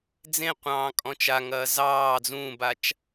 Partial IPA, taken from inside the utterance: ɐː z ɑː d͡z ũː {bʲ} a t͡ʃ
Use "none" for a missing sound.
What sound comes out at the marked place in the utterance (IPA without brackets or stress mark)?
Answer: b